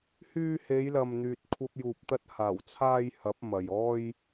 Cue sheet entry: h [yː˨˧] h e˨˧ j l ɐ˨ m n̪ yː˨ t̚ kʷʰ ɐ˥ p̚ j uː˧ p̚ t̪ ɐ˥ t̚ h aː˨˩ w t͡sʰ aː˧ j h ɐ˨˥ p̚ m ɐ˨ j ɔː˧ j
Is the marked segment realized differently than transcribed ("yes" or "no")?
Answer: yes